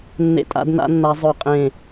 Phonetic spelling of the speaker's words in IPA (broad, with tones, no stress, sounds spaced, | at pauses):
nː ḛ˧˩ tʼ a̰˨˩˦ d n a̰˨˩˦ nː a˨˩˦ zˤ œ˧˩ qʼ ẽ˧˩